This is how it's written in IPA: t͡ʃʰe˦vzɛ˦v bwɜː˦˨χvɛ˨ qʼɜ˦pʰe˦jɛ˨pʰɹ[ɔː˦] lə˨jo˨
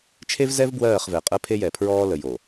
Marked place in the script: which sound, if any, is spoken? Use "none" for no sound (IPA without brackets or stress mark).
ɔː˦